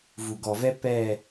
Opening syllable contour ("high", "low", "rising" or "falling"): low